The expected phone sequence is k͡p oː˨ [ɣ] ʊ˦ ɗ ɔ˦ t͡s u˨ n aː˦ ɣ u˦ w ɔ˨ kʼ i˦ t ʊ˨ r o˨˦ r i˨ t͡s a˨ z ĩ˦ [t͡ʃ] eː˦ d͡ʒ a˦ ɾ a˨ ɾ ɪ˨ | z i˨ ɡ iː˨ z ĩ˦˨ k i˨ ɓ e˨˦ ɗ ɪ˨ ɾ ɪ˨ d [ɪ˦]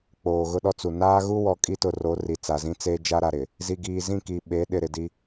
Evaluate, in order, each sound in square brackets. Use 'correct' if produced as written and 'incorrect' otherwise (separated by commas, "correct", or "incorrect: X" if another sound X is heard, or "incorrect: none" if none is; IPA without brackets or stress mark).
correct, incorrect: t͡s, incorrect: i˦